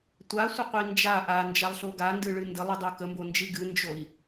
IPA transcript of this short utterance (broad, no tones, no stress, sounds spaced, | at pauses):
tʷ a sʷ ə qʷ i n d͡ʒ a ʔ a n d͡ʒ a lˠ ɬ o ɡ a n d ɨ ɭ ɨ n d ə lˠ ɨ dˤ o k ə m b o n d͡ʒ i ɡ ɨ n d͡ʒ o i̯